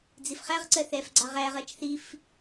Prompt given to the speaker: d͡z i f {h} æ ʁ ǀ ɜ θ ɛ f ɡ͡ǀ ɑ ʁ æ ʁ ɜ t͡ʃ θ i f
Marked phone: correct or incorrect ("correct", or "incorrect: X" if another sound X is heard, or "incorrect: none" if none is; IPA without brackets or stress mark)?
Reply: incorrect: χ